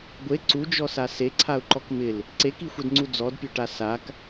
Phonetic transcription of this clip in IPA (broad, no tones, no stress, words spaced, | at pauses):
ɡʷe ǀud͡ʒɔsa seǀʰaʊ̯ǃɔk mɪl | ǀekixʷɛdŋ͡ǀu d͡zɔdpʲoʈa sak